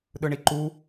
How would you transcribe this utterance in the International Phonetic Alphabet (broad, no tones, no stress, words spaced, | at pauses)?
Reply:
ɗɯɳiǃu